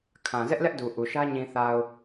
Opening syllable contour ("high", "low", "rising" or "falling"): low